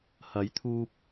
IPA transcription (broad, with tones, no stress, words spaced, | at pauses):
hɐ˨˥jt̪ʰuː˧p̚